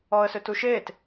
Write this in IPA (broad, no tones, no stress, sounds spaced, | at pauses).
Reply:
ɔ ə̯ s ø t u ʃ e t